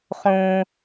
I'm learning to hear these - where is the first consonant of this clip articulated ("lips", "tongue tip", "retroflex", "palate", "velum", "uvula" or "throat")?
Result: uvula